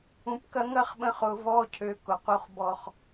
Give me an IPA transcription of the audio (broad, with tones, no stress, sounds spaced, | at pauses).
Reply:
ũ˨ p k ɐ˧ ŋ ɐ˦ χ ɓ ə̃˧ χ ʊ˨ v ɔ˧ cʰ ø˨ k ʊ˨ q u˧ χ b ɔ˨ χ